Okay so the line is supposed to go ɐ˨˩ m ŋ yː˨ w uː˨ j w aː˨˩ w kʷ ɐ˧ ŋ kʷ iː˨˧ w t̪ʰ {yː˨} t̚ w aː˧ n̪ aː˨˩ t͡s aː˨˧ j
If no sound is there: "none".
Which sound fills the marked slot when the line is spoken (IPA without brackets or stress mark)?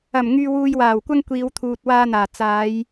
uː˨